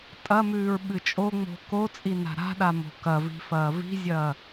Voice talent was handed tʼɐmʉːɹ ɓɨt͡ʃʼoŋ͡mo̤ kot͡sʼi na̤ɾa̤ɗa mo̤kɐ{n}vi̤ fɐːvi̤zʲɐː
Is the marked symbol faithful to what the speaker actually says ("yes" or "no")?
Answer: no